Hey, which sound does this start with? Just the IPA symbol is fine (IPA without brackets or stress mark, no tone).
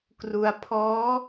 k